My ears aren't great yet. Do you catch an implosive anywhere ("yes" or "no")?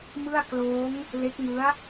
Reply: no